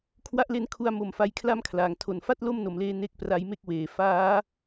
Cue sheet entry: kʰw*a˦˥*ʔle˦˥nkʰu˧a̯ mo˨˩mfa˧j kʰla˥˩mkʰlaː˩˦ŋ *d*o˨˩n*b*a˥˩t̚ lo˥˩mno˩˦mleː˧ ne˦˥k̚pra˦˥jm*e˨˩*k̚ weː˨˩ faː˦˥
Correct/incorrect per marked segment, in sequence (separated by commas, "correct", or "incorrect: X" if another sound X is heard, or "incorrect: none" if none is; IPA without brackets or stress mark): correct, incorrect: tʰ, incorrect: f, incorrect: e˥˩